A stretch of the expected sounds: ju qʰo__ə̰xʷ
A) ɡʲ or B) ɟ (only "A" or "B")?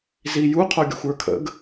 A